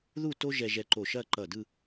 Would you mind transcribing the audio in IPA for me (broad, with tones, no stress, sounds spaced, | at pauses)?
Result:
ð u˥˧ t o˥ ʒ ɛ˧ ʒ ɛ˧ ǃ o˧˩ ʃ ɐ˥˧ ǃ ʌ˧˩ d ɯ˥˧